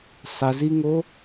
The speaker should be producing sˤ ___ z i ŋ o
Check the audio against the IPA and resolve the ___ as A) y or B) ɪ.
B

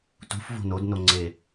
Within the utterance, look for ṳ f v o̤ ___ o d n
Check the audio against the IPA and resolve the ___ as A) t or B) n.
B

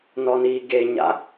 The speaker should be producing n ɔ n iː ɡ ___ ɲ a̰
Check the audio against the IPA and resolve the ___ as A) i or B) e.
B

